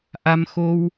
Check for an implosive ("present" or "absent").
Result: absent